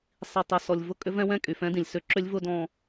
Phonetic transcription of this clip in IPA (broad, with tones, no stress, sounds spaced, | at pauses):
sˤ i˨ tˤ ɛ˨ s ɔ˨ lʲ v ʊ˦ kʼ ʏ˦ v ɛ̃˦ w ɛ̃˦ kʼ y˨ f ɛ̃˦ d ĩ˨ lʲ s ʏ˦ ǁ ʏ˦ lʲ v ʊ˦ d ɔ̃˦